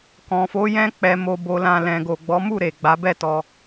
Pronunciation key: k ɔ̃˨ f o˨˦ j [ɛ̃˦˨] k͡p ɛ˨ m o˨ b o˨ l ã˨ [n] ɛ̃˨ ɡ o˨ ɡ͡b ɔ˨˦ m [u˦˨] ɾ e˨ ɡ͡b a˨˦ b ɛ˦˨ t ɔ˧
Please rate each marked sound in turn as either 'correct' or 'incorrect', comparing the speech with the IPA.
incorrect: ɛ̃˧, incorrect: l, correct

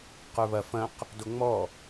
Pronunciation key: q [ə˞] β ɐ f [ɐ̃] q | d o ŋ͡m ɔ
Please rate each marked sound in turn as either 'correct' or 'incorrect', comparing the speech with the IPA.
correct, correct

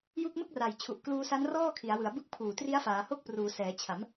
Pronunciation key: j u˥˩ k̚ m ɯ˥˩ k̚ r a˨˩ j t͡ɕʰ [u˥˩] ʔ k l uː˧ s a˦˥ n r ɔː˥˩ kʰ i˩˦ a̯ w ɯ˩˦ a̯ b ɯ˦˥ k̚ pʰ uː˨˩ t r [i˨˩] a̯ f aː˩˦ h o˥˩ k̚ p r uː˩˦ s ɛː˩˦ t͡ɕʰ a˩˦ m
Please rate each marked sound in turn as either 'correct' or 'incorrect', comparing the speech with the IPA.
incorrect: u˨˩, incorrect: i˦˥

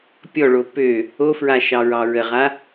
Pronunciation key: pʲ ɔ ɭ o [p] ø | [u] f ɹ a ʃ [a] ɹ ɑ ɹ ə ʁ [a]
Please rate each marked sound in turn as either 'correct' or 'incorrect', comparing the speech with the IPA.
correct, incorrect: o, incorrect: ɑ, correct

